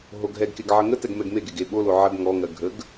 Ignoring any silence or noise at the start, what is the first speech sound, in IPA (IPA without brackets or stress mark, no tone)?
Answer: ɦ